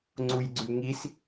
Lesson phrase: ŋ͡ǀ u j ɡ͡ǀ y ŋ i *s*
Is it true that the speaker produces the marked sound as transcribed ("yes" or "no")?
yes